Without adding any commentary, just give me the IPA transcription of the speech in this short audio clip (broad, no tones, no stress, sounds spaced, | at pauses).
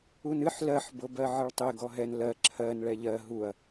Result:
u n ɨ ħ l ɜ ħ b ɤ b ɜ ʕ ɨ ɭ tˤ e ɡ ɔ ɦ ɛ n l ɜ ǁʰ ɜ n ɭ ɛ ʎ ɜ ɦ u ɐ̯